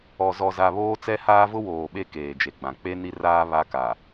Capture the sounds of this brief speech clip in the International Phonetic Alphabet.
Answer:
ɔ˨zɔ˨za˨βoː˦ t͡sɛ˦haː˦vʊ˦ woː˨ɓe˦ keː˨d͡ʒe˨ɡ͡bã˨ k͡pe˦ ni˦ raː˦ βa˦ka˨

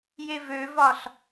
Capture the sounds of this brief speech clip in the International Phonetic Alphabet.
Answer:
jevøvɒɬ

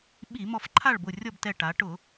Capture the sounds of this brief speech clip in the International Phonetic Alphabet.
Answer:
ɓi˧˩˧ mɔ˧˩fǃʰa˥˨ɭbʊ˧˩ rʲɔ˥˨btɛ˧˩ʈa˩˧ ʈʊ˧˩˧

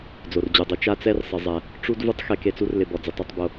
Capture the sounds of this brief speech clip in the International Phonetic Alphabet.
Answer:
d͡zo˩rd͡ʑu˩dˤu˨ t͡ʃa˦t͡sɛ˦r sˤɪ˨zˤɛ˩ | ʈ͡ʂu˥d vu˦tˤxe˨ke˨t͡su˦r lɪ˨bɔ˩ d͡zɪ˨tˤu˨tˤbo˨

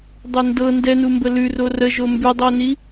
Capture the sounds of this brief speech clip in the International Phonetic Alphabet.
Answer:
dˤɛndɤ ndɛnumbə lʉro rə ʒombʉdˤoni

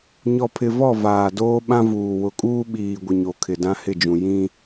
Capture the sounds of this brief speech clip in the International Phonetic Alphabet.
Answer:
ɲɔ˨pʰɪ˨vɔ˦˨ vaː˨doː˦ɓã˦vuː˨ wʊ˨kʼuː˦ ɓiː˨ɡʷɪ˨ ɲo˨kʰɪ˨ dã˦hɪ˦˨d͡ʒũ˨ jĩ˦

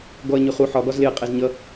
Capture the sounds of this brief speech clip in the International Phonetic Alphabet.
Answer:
ɡɔɐ̯ɲʊχu ħɒ ɡɒzlɪɐ̯ qʼæzɲʌ

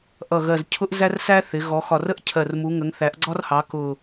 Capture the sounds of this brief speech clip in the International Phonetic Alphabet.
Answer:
ʔʌ˨˩ɣɜ˨˩zcʰʊ˦ʔ zæ˦rsæ˦ θɪ˩˧ɣɔ˩˧ xɒ˨˩rə˦ʔ cʰɜ˨˩rmu˩˧ŋə˩˧ŋ θæ˩˧ʔɡ͡ǀɒ˦rhɑ˩˧ kʊ˨˩

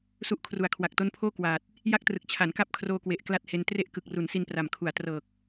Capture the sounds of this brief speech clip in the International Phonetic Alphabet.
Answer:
su˦˥ʔ kʰru˨˩a̯kʰwa˨˩k̚to˦˥npʰoː˥˩ kwaː˨˩t̚ | ja˦˥k̚trɯ˨˩k̚ t͡ɕʰa˩˦nka˦˥p̚kʰroː˧kwe˨˩ʔ kla˥˩t̚he˧n tre˦˥ʔkɯ˨˩k̚ru˩˦n si˧npra˨˩mkʰu˩˦a̯ trɤː˨˩k̚

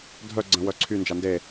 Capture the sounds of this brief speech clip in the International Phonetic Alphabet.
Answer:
dʱœ ɡ͡ǀə̃ wœǀʰy nd͡ʒande

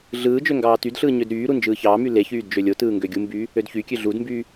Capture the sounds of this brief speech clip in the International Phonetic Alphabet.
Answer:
ɮɯːd͡ʒø ŋɡɑːtydɬɯː ɲødɾyːɾu nd͡ʒɯːçɑːmy leçyːd d͡ʒølʲotɯː ŋɡøɡʲumbyː | ødçykʲø ɮudmbyː

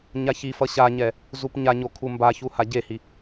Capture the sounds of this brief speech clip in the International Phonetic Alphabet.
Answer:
ɲaçifʌ ɕaɲɛ | zupɲaɲo kʰumbaçu haɟehi

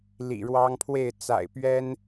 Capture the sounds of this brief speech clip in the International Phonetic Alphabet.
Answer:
lḭ˨˩ɻwɑ˦ŋpʰwe˥˨ɪ̯ t͡sa̰˨˩ɪ̯pɥɛ˦n

